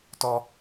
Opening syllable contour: high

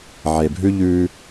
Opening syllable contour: low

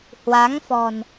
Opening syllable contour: rising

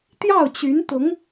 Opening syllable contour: falling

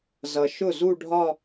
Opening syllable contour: low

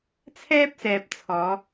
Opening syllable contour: high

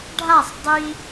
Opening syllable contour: falling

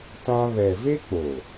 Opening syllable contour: high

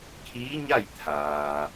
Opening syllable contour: rising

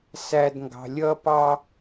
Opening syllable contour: high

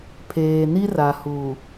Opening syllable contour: low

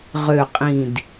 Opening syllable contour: low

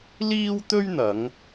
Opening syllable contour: high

